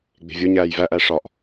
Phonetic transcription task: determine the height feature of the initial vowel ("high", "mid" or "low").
mid